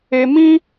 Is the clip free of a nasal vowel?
no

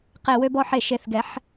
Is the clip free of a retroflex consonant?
yes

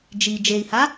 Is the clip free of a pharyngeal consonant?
yes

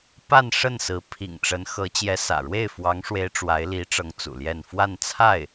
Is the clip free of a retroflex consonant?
no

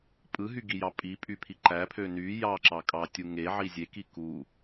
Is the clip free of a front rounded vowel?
no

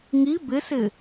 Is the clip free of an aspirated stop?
yes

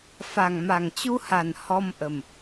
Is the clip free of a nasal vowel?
yes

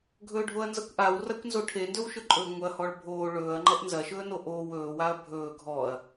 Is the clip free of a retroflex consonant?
no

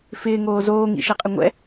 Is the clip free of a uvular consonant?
no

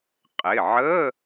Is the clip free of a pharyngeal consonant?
no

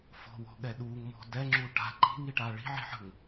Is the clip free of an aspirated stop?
yes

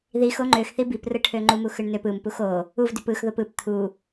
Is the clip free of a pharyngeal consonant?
yes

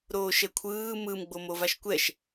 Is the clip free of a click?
yes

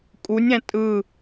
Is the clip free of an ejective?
no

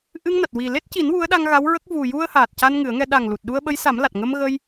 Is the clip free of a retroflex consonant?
yes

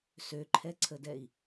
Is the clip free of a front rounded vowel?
no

